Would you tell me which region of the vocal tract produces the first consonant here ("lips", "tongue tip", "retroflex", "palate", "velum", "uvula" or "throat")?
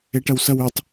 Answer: retroflex